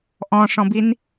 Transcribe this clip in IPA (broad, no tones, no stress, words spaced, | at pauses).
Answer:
ʔɔ̃ʂɔ̃bin